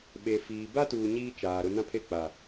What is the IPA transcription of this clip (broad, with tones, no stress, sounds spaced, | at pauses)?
ɓ e˨ f iː˨ b a˦ t uː˨ ɲ iː˦ t͡ʃ aː˨ ɾ ʊ˦ n ã˦ pʰ e˦˨ k͡p a˨